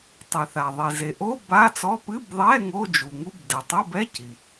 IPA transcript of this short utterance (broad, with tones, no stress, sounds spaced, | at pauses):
tˤ ɛ˩ θ a˩ ðˤ e˩ z e˩ ʔ o˧˥˧ b a˧˥˧ t͡s ɔ˧˥˧ p ɨ˧˥˧ b ðˤ ɛ˧˥˧ ŋ o˧˥˧ d͡ʒ u˩ ŋ u˧˥˧ b d ɛ˩ tˤ o˧˥˧ b ɛ˧˥˧ c i˩